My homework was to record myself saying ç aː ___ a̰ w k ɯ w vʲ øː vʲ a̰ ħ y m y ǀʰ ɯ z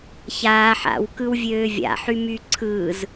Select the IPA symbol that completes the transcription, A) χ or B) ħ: B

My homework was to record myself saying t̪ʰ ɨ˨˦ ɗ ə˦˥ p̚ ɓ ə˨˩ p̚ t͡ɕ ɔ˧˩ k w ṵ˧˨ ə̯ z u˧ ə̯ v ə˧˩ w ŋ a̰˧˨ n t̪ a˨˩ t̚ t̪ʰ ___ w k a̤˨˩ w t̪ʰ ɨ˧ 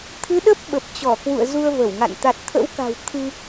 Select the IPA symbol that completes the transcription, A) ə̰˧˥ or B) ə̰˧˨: A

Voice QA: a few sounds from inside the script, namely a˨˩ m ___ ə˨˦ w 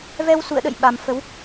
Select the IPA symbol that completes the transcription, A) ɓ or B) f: B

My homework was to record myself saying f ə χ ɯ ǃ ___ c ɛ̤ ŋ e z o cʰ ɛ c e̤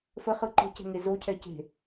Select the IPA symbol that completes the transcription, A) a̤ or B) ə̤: B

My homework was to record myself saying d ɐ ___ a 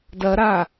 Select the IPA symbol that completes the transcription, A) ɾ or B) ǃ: A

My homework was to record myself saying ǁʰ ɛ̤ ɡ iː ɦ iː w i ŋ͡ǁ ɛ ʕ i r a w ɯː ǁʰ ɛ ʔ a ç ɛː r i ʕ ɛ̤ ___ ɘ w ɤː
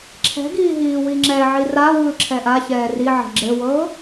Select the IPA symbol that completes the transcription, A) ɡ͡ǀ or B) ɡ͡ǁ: B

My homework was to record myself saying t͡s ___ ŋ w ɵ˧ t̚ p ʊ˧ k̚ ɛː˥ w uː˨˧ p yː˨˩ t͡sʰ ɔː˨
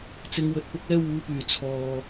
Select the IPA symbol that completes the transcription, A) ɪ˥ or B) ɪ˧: B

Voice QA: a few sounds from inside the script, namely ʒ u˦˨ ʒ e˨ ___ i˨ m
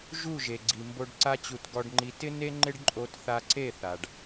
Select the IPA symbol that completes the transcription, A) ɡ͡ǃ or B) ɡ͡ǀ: B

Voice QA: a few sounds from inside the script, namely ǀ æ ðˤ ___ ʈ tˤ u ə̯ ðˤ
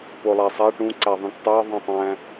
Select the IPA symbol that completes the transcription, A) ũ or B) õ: A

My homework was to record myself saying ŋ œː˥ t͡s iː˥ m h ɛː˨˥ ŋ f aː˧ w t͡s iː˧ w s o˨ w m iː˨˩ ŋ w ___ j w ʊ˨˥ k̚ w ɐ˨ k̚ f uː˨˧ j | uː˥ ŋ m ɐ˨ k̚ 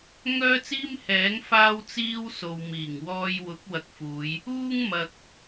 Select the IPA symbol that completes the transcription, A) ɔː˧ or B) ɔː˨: A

